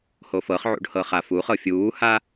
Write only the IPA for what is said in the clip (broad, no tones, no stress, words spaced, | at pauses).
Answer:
hofɤχʕṵɖ hɤχafuχɤ fʲuːha